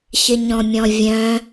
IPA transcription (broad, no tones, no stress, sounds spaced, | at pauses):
ç ɪ ɲ ɔ̃ mʲ ɔ̃ vʲ œ̃